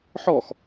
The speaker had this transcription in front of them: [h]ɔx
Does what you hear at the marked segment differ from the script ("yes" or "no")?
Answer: yes